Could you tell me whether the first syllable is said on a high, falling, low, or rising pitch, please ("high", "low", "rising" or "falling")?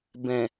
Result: low